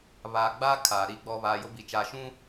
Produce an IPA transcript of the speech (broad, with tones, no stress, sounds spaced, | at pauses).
β aː˨ ɡ͡b aː˦ kʰ aː˨ ɾ i˦˨ ɡ͡b ɔ˦ β aː˨ j ʊ˦ b i˨ t͡ʃ aː˨ ʃ ũ˦